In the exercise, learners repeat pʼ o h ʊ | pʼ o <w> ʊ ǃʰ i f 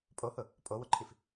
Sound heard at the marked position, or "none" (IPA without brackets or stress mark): w